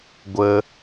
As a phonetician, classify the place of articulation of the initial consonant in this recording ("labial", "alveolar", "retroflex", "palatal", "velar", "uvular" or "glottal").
velar